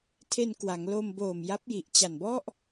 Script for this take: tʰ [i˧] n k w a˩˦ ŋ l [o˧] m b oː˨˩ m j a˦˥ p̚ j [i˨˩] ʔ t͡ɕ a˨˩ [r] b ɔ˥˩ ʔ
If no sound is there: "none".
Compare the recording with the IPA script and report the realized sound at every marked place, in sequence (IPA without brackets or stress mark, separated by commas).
e˧, o˧, i˨˩, n